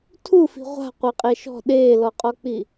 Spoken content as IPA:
tʰ u f i̤ ʁʷ a̤ qʷ ɛ qʼ e ʃ ɔ̤ ɗ eː l ɔ qʼ ɔ k͡p i

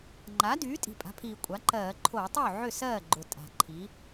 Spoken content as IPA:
ŋ͡ǃ a˩˥ d yː˩˥ tʼ i̤˨˩ pʼ a̤˩˥ pʰ iː˨˩ kʷʼ a˩˥ ǃ ɜː˧˩˧ ǃʰ oː˧˩˧ tˤ yː˥˩ ʕ ʏ˥˩ s ɜː˥˩ ɡ͡ǃ ʊ˨˩ tʼ a̤˨˩ ǃʰ i˩˥

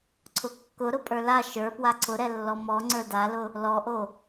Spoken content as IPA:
ǀʰ ʊ kː ʊ ɾ ʊ pʼ ə˞ l a ʃ ə˞ p w a ǀʰ ʊ ɾ ɛ lː ɔ m ɔ ŋ͡ǀ ə˞ d a l ʊ | l ɔ ʔ o

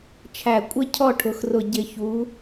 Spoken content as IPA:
t͡ʃʰ æ˨˩ kʷʼ ɪ˥˧ cʰ ɔ˥˧ ʈʰ ʊ˩˧ x r ʊ˨˩ ɟ ɪ˨˩ ç u˩˧

